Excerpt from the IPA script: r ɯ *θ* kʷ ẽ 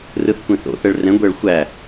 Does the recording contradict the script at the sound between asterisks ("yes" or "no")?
no